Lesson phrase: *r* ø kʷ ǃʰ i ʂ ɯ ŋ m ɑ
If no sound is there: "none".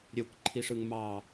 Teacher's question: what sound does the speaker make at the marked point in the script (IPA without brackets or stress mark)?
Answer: ɾʲ